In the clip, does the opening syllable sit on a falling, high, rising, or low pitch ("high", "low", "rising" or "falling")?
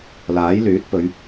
rising